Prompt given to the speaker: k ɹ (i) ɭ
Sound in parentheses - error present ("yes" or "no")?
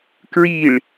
no